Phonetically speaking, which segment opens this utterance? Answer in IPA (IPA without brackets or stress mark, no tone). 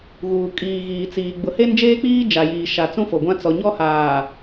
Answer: ɣ